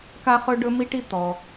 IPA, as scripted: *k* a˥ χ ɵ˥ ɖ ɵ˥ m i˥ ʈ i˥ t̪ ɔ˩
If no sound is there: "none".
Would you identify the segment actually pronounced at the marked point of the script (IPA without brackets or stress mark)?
k